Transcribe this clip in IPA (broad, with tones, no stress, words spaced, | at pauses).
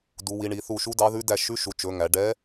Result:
du˩˧wi˩˧ɳi˩˧θu˧˩ ʃu˧˥dɑ˧˥ðʉ˧˥ dæ˧˩ ʃʉ˧˥ʃu˩˧t͡ʃɵ˩˧ ŋæ˩˧ɖɛ˧˥